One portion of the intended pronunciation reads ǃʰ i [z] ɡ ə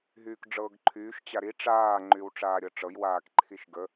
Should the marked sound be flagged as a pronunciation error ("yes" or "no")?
yes